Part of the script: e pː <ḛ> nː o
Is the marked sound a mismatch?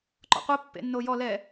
no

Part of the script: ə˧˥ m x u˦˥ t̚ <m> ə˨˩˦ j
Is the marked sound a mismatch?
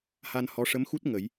yes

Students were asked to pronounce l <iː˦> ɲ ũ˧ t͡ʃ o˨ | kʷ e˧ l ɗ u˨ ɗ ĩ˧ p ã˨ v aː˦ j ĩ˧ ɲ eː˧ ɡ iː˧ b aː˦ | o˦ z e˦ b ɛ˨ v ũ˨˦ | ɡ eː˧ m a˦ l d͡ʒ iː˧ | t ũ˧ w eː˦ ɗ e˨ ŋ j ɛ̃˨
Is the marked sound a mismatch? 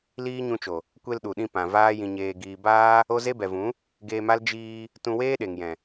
no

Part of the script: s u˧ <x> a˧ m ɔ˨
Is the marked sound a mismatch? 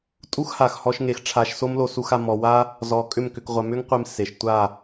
no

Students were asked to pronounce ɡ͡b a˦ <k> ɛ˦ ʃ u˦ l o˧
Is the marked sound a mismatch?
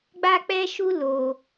yes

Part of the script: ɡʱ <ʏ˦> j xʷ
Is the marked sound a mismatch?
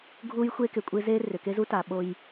yes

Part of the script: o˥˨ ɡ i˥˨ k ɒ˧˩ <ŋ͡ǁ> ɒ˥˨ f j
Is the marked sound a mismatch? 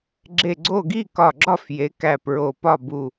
yes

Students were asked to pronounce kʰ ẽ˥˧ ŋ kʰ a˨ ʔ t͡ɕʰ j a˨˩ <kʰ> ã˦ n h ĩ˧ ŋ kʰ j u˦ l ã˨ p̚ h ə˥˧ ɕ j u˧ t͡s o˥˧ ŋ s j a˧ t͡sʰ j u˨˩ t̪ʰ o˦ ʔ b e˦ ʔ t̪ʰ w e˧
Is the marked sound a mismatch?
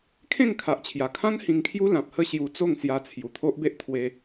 no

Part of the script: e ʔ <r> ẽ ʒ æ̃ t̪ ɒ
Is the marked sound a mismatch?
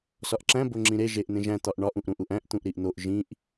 yes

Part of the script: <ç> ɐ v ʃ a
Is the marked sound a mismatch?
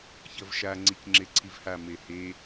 no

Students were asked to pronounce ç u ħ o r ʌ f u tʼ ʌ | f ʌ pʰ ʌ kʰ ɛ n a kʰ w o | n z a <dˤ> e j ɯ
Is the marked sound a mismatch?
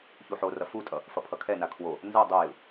no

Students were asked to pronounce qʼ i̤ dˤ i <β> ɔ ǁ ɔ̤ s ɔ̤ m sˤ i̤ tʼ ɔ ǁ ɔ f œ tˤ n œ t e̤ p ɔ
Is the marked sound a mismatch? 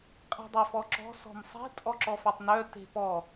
yes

